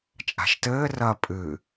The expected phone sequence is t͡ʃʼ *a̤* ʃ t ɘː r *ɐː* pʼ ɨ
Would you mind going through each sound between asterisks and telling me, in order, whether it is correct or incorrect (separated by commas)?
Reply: correct, correct